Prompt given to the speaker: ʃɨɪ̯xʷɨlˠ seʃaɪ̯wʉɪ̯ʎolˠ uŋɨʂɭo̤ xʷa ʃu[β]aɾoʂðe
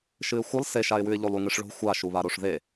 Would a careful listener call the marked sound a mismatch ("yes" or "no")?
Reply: no